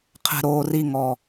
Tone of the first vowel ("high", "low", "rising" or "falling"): low